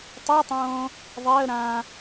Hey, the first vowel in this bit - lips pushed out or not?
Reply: yes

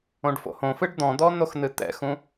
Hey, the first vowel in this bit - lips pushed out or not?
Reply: yes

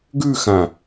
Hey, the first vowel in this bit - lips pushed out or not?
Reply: yes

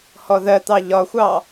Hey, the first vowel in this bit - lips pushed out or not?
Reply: yes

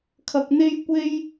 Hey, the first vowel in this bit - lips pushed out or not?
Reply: no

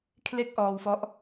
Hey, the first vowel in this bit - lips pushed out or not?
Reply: no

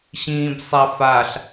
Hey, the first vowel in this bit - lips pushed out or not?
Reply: no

